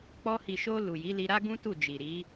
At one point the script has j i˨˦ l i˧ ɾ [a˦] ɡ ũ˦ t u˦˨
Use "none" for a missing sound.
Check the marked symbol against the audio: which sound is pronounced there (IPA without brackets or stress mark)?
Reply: a˦